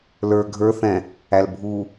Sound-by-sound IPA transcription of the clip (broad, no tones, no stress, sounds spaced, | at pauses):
l ə˞ ɡʱ ə˞ θ ɛ̃ | æ l bʱ u